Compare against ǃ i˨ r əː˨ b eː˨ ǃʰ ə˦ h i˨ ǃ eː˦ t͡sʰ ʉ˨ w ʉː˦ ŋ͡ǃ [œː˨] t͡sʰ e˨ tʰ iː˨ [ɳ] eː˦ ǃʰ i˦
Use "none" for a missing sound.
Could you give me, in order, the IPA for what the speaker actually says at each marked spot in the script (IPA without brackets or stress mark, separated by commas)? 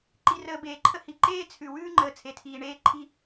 əː˨, ɳ